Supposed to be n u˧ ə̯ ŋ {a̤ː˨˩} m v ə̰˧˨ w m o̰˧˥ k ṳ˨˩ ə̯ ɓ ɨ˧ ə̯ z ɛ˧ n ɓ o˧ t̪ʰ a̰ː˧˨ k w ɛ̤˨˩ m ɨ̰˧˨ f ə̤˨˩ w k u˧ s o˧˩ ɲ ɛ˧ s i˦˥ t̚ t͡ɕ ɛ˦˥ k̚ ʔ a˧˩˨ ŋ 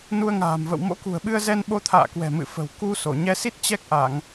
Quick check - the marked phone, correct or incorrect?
correct